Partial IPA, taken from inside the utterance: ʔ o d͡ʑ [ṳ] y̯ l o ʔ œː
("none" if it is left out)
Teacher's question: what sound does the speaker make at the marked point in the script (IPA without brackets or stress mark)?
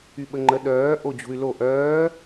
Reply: ṳ